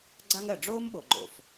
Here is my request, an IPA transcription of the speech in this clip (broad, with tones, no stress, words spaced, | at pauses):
ɡ͡ǀa˦ŋɜ˩ɖ͡ʐoː˥m ɓo˩ɡ͡ǃo̰˩f